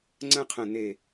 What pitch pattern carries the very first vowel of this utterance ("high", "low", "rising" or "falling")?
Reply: high